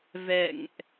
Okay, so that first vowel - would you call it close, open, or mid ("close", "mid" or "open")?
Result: mid